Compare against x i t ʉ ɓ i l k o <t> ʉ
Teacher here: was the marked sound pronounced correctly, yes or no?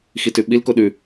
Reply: no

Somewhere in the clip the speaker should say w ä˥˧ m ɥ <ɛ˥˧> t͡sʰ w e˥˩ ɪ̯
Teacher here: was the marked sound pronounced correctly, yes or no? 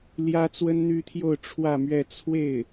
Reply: yes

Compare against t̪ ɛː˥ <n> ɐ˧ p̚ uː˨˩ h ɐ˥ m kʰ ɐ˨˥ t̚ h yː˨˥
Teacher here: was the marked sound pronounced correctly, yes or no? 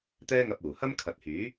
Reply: no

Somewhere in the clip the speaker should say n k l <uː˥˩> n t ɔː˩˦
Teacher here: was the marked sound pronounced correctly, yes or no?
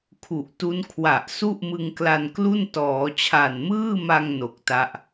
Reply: no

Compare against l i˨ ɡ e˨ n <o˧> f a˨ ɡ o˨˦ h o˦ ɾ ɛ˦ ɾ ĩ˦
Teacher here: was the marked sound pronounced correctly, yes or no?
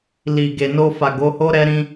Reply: yes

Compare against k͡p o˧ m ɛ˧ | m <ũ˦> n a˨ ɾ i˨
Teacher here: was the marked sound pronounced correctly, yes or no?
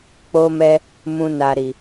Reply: no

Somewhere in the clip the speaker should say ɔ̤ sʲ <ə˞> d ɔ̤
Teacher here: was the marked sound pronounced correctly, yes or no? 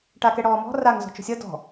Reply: no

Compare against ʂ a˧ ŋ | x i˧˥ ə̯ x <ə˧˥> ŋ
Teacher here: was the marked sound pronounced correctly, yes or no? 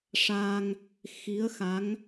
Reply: no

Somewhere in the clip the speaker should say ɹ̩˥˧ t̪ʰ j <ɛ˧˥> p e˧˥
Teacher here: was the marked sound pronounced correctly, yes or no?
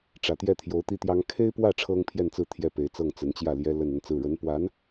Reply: no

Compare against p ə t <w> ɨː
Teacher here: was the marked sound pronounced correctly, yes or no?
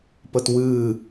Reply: yes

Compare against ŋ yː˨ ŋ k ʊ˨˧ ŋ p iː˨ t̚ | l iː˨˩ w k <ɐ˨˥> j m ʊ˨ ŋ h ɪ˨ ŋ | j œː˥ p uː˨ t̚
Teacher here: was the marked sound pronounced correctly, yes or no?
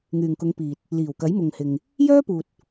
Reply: yes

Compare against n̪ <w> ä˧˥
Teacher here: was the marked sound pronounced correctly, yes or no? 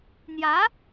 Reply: no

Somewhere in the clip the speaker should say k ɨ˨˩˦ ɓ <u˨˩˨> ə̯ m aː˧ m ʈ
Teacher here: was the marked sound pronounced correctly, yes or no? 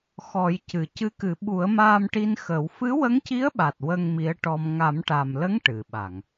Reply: no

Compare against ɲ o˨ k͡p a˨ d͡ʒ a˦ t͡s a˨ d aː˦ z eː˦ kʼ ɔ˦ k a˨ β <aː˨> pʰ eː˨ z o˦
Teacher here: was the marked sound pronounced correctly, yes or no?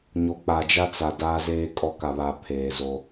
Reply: no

